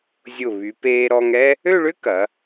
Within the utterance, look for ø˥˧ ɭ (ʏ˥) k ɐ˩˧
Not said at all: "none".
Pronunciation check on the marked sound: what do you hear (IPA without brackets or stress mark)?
ʏ˥